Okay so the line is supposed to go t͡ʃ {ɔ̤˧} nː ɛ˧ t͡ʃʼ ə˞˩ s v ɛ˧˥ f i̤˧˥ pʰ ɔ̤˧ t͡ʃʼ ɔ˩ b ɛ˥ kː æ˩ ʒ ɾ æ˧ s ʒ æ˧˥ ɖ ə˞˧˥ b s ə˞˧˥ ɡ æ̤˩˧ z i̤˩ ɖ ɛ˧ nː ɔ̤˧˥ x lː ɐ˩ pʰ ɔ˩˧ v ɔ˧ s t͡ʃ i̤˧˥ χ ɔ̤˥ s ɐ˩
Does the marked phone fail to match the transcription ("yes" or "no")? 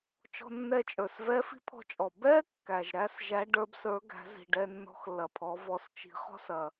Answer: no